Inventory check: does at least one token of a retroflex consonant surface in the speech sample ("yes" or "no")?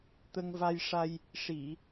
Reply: yes